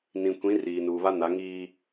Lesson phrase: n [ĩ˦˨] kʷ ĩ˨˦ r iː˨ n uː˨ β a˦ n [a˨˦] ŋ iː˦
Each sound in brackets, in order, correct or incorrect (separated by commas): incorrect, correct